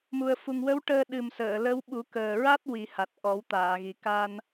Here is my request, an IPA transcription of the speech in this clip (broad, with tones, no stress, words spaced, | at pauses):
mu˨˩ə̯fu˨˩ŋwə˧˥w ʈəː˧ ɗɨ˨˩msəː˨˩˨lə˧˥w ɓu˨˩˦kəː˨˩ɹa˦˥t̚ wi˨˩˦ha˨˩t̚ ʔɔ˨˩˦wt̪aː˨˩˨ɣi˨˩ ka˧n